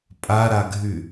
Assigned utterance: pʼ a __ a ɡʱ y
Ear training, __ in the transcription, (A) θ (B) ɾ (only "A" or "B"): B